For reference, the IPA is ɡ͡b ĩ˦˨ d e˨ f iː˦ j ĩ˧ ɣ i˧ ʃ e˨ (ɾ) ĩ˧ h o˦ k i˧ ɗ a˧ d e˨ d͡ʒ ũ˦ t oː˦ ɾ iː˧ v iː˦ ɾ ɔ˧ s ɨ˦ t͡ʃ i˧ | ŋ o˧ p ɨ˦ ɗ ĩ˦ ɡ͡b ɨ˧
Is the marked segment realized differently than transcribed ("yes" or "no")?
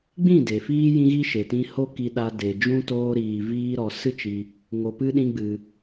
yes